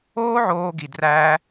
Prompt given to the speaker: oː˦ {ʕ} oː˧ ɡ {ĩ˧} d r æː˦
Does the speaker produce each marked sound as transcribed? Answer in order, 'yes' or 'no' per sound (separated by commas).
yes, no